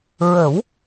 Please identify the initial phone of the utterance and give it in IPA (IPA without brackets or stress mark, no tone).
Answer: ɹ